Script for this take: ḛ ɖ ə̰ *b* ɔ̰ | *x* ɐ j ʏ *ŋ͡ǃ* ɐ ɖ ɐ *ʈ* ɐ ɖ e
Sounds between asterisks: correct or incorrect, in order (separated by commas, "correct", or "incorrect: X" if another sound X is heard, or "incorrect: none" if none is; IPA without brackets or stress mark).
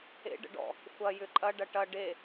incorrect: ɖ, incorrect: xʷ, incorrect: ǃʼ, correct